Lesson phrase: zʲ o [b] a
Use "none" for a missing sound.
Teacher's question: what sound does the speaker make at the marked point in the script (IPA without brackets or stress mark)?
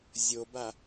b